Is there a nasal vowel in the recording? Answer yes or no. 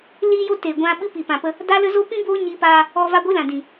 yes